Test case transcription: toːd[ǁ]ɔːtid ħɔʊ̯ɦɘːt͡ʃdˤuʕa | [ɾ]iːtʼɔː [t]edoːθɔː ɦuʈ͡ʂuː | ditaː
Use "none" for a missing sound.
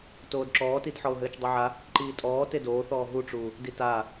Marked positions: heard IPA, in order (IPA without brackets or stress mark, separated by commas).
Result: ǁ, ǃ, t